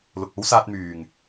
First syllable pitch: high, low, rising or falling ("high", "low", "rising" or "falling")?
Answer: low